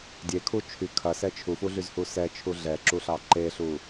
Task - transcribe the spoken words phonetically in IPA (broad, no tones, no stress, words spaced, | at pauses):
dʲekʰu t͡ʃʰy kʰɐsɛ t͡ʃʰufuɮyzhu sɛt͡ʃʰu ɮɛǁuɬɑ ǃeɬu